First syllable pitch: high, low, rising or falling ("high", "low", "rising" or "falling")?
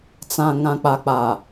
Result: low